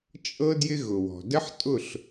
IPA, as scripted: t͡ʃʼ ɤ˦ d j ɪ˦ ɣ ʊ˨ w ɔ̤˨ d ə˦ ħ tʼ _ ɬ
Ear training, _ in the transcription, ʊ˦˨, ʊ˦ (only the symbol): ʊ˦˨